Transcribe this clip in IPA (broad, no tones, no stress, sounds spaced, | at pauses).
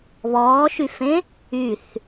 β ɔː ʃ y f ẽ | y θ